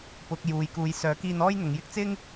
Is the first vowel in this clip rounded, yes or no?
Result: yes